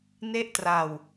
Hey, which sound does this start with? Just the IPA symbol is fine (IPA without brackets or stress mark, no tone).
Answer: n